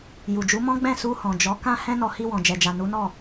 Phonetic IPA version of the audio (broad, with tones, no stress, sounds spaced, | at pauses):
j u˨ d͡ʒ u˨˦ m ɔ̃˦ ɡ͡b ɛ̃˦˨ s u˧ h ɔ̃˨ d͡ʒ ɔ˨˦ k ã˦ h ɛ̃˦ n ɔ˧ h i˧ w ɔ̃˨ d͡ʒ ɛ˨ d͡ʒ a˨ n u˨˦ n ɔ˦˨